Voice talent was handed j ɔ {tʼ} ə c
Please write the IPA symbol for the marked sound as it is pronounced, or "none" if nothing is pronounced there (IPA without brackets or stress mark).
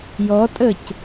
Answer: tʼ